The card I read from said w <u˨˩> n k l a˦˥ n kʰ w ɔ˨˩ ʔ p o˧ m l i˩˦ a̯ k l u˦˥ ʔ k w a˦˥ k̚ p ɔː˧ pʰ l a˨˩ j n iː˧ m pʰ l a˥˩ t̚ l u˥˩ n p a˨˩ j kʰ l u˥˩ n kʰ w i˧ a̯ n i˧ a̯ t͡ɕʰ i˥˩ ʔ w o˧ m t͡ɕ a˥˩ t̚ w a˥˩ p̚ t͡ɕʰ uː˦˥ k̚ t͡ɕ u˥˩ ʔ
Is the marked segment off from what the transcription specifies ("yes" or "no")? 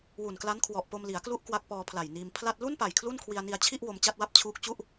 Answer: no